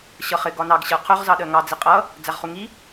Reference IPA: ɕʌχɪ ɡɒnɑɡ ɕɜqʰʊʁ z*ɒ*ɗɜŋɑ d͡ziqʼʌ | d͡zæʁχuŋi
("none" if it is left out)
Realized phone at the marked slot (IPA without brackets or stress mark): ɑ